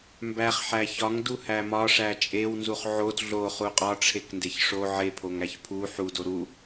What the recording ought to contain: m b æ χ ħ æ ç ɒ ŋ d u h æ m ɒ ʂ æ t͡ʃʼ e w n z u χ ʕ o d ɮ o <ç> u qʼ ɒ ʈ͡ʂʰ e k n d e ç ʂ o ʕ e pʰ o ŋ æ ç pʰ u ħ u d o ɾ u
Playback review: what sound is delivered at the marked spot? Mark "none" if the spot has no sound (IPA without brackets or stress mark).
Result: χ